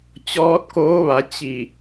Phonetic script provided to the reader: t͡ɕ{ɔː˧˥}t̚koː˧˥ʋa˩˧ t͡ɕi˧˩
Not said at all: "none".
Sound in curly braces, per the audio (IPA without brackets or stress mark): ɔː˧˥